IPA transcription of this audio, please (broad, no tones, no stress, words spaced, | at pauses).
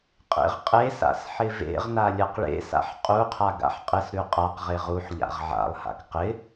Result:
qʼḛʁqʼesa̰s ħɪvḛʁna lʲɐqɭḛsa̰ħ qʼuqʰa ɡa̰ħqʼɪsɾʉ qʼaqʁe ʁuħ ʎa̰ʁʕa̰lˠha̰k qɪ